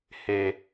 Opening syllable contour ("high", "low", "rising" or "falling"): low